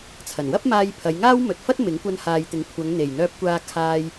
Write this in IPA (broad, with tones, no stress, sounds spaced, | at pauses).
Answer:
t͡sʰ ɐ˨˩ n w ɐ˥ p̚ m aː˧ j pʰ ɐ˨˧ j ŋ aː˥ w m ɵ˨ t̚ f ɐ˥ t̚ m ɪ˨˥ ŋ kʷ ɐ˧ n h aː˨ j t̪ ɪ˨˥ ŋ kʷʰ ɐ˨˧ ŋ n̪ e˨˩ j n̪ œː˧ p̚ kʷ aː˧ kʰ aː˧ j